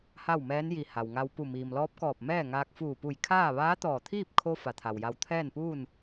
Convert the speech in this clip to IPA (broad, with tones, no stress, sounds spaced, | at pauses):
h a˥˨ w m ɛː˧˥ n j i˧˩ h a˩ w ŋ a˧ w p u˧˩ m iː˩ m l ɔː˧˥ p̚ k ɔː˧˩ p̚ m ɛː˥˨ ŋ aː˧ k̚ f uː˧˩ p u˧˩ j kʰ aː˥˨ ʋ aː˧˥ t̪ ɔː˧˩ t̪ʰ iː˥˨ p̚ kʰ o˧ f a˩˧ t̪ʰ a˩ w j a˧ w t̪ʰ ɛː˥˨ n p uː˥˨ n